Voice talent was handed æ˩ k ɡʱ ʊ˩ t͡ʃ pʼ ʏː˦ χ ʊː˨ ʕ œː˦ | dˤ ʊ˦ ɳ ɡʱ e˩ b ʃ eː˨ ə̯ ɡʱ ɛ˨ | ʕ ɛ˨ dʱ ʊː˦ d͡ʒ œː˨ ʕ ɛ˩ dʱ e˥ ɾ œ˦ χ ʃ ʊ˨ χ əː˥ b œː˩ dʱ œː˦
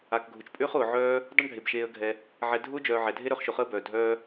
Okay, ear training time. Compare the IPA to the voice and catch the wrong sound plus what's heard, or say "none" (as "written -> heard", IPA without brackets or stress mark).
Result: æ˩ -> a˩